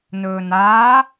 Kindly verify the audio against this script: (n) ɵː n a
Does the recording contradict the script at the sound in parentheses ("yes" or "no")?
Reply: no